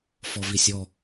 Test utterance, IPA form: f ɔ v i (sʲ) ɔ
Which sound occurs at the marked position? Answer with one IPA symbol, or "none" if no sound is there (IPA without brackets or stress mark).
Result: sʲ